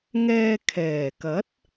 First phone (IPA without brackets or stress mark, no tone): ŋ